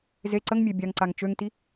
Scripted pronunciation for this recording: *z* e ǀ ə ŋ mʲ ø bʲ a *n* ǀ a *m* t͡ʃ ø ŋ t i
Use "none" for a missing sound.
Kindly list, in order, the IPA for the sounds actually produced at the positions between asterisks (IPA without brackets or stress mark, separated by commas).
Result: z, ŋ, ŋ